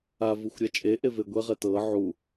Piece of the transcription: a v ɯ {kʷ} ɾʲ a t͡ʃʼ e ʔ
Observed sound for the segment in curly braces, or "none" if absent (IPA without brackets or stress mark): xʷ